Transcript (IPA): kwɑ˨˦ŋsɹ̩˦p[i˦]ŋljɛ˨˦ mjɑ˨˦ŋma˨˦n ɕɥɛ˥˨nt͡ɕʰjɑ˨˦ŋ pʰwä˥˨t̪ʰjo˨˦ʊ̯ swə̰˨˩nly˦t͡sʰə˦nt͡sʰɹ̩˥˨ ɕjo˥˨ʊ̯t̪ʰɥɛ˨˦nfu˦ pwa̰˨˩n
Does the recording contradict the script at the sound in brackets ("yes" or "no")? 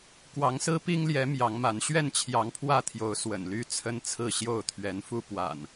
no